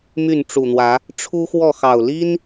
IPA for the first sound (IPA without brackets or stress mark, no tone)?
m